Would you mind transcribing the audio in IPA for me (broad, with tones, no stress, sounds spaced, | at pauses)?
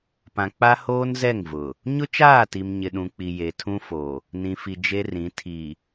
p ã˨ k͡p a˦ h oː˦ n z ɛ˦˨ ŋ v ʊ˨ | ɲ ʊ˦ t͡ʃ aː˦˨ t i˨ m ɲ ɪ˨ ɗ ũ˨ k͡p i˨ j e˨ tʰ ũ˦ f o˨ | n ĩ˨ f i˨ d͡ʒ e˦ r ĩ˨˦ tʰ i˨